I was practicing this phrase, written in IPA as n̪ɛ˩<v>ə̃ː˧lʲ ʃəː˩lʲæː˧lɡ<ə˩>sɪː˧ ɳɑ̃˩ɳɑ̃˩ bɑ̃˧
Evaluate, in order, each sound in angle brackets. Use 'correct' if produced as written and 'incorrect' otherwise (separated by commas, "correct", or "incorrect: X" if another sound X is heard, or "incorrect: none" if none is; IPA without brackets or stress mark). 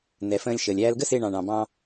incorrect: f, incorrect: ə˥